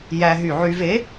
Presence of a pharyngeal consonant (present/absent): present